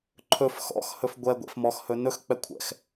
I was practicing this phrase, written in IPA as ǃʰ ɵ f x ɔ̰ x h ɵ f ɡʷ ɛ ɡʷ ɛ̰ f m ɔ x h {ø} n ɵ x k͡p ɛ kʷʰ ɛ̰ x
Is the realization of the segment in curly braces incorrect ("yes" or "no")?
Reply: yes